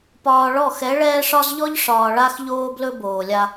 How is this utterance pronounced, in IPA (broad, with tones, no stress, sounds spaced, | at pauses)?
p ɒː˨ ɭ ɔ˦˨ x ɛ˨˦ ɭ ɛː˦ ʂ ɒ˦ z ʎ ɔ˦ ʎ ʂ ɒː˨ ɭ a˦ x ʎ oː˦ b l ɵ˦ b oː˨ lʲ a˦